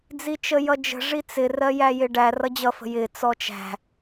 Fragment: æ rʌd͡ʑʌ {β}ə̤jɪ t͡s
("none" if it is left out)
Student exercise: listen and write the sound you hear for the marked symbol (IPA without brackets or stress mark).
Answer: f